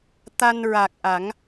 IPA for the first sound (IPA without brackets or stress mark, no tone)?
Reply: t̪